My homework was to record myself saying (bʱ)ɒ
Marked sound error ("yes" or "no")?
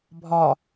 no